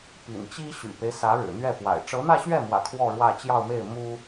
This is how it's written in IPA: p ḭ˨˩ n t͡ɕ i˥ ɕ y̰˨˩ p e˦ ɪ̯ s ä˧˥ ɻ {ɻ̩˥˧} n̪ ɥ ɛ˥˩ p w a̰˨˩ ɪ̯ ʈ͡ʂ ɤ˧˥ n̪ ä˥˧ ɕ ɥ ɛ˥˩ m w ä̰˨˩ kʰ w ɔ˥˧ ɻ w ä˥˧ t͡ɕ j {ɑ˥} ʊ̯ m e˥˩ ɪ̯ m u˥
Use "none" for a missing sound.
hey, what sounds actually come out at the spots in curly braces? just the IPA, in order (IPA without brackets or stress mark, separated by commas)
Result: ɻ̩˨˩, ɑ˥˧